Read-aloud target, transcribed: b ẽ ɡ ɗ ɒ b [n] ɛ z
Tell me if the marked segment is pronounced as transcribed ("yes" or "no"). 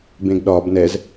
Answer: yes